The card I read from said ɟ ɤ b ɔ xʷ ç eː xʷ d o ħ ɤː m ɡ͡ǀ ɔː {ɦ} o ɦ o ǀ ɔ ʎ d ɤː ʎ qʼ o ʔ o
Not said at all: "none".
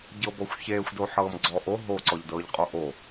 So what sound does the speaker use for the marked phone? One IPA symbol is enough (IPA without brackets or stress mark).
ʔ